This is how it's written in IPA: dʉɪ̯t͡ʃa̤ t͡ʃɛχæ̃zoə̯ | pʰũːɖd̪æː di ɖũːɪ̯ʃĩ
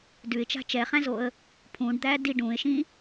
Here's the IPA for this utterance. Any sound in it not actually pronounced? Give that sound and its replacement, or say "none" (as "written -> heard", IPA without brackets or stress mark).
none